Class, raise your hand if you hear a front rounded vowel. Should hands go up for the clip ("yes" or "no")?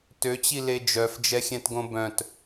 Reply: yes